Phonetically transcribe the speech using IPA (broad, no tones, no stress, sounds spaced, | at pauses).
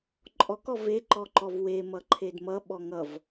ǃʼ ɔ k ɔ v e ǃ ɔ ǃ ɔ v w e m ʌ ǃʰ e d m ʌ ɓ ɔ ŋ ʌ v